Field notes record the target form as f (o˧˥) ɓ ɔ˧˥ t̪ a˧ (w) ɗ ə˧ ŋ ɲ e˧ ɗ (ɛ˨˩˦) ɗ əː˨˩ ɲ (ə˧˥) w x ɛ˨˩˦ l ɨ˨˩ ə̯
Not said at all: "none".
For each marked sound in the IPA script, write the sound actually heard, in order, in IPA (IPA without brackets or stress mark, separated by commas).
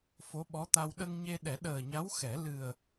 o˧˥, w, ɛ˨˩˦, a˧˥